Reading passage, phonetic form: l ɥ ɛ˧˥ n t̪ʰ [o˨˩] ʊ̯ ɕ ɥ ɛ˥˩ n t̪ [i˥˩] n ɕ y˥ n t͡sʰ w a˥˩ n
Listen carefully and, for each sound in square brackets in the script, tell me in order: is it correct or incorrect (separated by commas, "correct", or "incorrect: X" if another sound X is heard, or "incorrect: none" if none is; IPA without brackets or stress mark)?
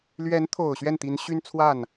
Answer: correct, incorrect: i˧˥